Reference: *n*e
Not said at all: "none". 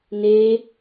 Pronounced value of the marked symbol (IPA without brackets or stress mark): n